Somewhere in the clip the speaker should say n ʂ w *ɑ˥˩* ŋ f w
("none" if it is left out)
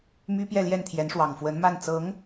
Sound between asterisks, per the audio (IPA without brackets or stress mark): ɑ˨˩